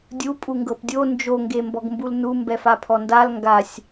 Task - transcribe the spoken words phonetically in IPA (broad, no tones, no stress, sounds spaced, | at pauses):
dʲ u pʼ u ŋ ɡ ɤ p dʲ o n d͡ʒ o ŋ ɡ e m b ɔ ɡ m b u l n u m b ɛ f a pʰ ɔ n d a l ŋ ɡ a sʲ